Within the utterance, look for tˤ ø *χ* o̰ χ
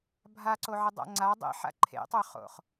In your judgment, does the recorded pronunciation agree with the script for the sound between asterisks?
yes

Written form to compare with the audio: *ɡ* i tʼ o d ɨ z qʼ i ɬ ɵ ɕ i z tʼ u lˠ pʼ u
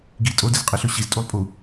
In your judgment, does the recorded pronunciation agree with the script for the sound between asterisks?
yes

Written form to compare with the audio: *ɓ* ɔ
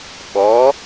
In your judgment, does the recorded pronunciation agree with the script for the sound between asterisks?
yes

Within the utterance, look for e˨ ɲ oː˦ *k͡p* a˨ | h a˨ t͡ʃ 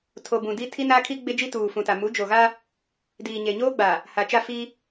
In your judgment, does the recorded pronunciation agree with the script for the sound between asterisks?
no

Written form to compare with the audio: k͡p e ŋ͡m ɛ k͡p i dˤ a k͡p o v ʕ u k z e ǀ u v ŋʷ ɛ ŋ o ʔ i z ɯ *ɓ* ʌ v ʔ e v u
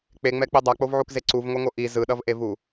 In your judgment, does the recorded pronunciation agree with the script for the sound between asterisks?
no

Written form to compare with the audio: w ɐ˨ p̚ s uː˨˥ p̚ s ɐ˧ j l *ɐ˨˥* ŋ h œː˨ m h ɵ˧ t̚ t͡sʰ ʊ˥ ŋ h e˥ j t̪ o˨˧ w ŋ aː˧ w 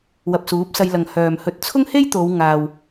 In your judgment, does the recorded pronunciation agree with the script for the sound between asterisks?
no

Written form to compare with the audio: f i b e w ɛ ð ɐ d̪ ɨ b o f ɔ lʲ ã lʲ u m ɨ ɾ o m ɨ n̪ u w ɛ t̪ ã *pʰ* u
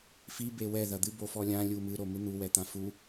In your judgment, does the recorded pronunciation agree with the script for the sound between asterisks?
no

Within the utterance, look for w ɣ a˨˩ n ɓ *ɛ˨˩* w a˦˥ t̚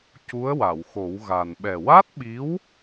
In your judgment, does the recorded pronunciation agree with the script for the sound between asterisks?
yes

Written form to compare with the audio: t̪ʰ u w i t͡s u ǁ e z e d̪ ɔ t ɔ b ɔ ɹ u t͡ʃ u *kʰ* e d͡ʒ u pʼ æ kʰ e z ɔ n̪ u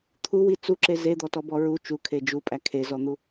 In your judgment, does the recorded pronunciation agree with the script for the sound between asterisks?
yes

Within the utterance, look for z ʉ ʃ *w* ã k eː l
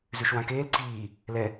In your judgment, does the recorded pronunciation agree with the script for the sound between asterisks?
yes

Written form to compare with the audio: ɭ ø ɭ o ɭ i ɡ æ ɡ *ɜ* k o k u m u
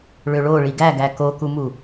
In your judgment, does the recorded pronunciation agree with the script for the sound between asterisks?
no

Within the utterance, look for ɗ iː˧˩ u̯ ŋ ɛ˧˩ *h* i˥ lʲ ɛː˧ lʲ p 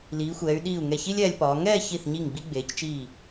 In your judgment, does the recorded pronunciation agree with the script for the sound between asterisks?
no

